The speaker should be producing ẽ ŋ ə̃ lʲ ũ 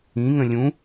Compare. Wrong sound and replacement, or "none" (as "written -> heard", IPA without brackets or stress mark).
ẽ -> ĩ